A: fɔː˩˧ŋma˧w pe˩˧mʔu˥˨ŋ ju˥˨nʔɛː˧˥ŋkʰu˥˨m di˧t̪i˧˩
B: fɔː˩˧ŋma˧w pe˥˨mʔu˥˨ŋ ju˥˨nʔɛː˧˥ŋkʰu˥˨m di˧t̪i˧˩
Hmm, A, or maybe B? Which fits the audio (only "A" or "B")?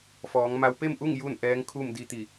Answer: B